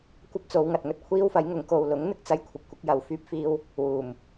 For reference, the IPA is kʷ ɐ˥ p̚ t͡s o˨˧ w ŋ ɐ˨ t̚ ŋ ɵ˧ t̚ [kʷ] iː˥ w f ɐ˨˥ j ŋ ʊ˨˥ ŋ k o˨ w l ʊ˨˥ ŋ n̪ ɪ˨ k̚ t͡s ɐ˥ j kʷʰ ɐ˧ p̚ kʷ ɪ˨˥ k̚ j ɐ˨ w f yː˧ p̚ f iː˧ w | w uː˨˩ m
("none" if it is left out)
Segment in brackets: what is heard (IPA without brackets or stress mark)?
kʷʰ